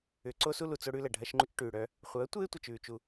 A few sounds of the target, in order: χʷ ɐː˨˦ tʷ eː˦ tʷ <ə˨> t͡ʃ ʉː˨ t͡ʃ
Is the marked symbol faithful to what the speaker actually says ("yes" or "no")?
yes